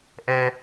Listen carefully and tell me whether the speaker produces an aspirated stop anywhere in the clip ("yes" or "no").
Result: no